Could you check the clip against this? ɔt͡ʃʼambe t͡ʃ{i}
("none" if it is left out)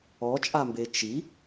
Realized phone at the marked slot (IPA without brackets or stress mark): i